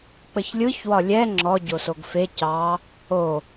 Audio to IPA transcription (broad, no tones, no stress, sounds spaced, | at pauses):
k͡p ə ç lʲ ɯ ç w ɒ lʲ ɛ ŋ͡ǁ ɔ ɟ o s o ɡ f e c ɑ | o